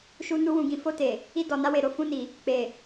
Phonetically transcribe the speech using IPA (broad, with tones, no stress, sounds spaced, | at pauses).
ʃ u˧ n u˧ w ũ˨ ɡ ĩ˨ f o˧ t e˨ | i˧ d ɔ˨ n a˧ w e˨ ɾ o˧ f ũ˧ n i˨ | k͡p e˨